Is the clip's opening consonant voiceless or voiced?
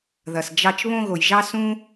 voiced